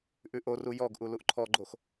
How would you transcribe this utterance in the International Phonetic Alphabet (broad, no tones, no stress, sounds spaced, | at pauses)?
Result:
ʔ ʉ ʔ o r u j ɔ ɡ ʔ u l u ʔ ǃʰ ɔ ɡ͡ǃ o x